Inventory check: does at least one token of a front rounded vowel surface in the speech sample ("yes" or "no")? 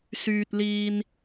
yes